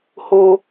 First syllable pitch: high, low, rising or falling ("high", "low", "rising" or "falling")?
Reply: high